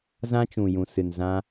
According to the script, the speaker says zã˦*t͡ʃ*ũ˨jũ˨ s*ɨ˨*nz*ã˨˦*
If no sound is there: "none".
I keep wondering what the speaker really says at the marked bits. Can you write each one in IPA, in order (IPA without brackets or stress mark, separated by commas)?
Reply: t͡ʃ, ɨ˨, ã˧